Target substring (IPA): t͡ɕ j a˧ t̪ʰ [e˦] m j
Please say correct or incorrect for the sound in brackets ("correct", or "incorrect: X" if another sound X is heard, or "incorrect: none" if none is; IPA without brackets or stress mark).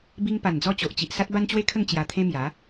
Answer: incorrect: ẽ˦